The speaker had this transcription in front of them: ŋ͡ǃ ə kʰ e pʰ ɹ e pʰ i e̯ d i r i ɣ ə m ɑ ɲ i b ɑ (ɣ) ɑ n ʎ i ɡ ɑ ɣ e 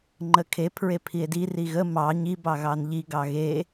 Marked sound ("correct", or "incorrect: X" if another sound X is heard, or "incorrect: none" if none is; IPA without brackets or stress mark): correct